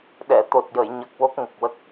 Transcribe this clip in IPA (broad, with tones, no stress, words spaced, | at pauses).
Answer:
ɗɛ˨˩˨ t̪o˨˩t̚jə˨˩˨jɲə˨˩k̚ wo˦˥k̚ŋə˨˩k̚wə˦˥k̚